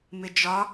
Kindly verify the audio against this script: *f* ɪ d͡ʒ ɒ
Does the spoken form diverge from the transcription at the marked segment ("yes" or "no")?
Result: yes